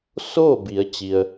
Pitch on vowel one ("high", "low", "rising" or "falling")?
falling